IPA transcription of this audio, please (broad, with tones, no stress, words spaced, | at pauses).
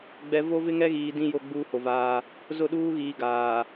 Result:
ɡ͡bɛ˨ vo˦vɪ˦ŋɛ˦ɣiː˨ dĩ˦jo˦˨ ɡ͡buː˦ho˨vaː˦ | zʊ˦˨ɗuː˦ɣiː˨ ɡaː˨